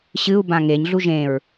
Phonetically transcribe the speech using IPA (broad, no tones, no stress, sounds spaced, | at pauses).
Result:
ɕ ɨ u̯ b ã ŋ e ɲ ɮ u ʒ ẽ ɹ